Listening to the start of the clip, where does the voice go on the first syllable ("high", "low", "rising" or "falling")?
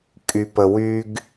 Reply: low